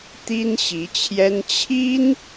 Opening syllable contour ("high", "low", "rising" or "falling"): high